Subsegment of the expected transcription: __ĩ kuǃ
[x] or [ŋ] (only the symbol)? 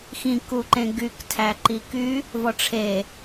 x